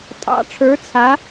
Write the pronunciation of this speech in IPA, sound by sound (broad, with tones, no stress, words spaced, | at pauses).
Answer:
tʼɑ̰˧˥ʈ͡ʂʰə˞˧˥t͡sʰa˧˥